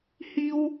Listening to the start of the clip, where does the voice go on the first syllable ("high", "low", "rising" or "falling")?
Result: high